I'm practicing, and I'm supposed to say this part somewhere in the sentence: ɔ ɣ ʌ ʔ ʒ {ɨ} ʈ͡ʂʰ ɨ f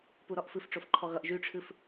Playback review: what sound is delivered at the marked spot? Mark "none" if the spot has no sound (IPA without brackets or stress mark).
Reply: y